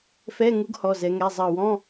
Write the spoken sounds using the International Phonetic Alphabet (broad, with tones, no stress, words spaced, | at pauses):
fɛ˧˥˧ŋu˧˥ɡ hɔ˩˧˩zɛ˩˧ŋɛ˩˧˩ zˤɜ˧˩wɔ̃˧˥˧